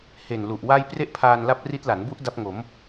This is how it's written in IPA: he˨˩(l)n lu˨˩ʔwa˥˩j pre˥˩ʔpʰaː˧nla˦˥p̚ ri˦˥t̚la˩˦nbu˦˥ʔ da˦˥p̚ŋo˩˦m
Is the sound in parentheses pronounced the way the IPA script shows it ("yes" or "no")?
no